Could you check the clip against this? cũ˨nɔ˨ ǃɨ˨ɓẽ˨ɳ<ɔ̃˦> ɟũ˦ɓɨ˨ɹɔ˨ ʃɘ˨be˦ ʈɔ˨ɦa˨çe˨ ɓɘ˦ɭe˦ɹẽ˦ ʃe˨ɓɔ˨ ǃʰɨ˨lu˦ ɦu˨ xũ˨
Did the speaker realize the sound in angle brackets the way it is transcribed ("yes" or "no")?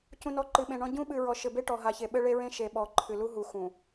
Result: yes